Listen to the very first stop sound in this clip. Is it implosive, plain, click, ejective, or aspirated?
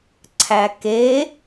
click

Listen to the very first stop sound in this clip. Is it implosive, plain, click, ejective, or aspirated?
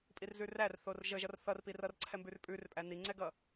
ejective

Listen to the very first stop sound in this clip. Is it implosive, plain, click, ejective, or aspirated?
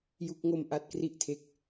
plain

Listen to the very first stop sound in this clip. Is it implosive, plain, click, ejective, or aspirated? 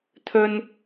aspirated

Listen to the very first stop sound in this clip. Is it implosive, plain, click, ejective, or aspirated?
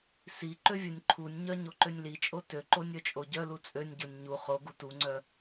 click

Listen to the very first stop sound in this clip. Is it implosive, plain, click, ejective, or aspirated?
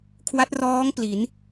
aspirated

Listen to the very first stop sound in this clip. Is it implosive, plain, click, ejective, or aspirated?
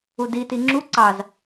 plain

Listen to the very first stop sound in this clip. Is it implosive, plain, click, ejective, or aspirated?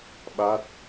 implosive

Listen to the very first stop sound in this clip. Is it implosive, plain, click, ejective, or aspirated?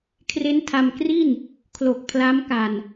aspirated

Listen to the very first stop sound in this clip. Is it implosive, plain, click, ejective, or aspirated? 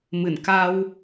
plain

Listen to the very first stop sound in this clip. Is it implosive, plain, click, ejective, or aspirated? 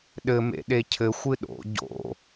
implosive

